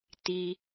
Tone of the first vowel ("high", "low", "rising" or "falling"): high